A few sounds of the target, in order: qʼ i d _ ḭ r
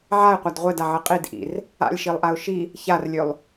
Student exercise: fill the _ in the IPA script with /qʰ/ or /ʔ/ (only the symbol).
ʔ